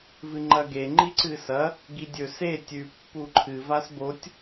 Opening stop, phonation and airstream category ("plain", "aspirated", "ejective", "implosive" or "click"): click